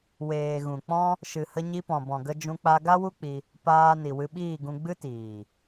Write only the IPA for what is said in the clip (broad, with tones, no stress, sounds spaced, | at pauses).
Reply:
w eː˨ ɣ ũ˨ k͡p ɔ̃˦ | ʃ ɨ˨ h ə˧ ɲ i˧ p ɔ̃˨ b ɔ̃˨ ɡ ə˧ d͡ʒ ũ˧ k͡p a˧ ɡ a˦ w u˦ k͡p i˧ | p aː˧ n i˨ w ɨ˧ ɓ iː˦˨ ɡ ũ˧ ɡ͡b ɨ˦ t iː˨